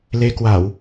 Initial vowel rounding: unrounded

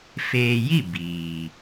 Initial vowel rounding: unrounded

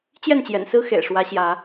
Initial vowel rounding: unrounded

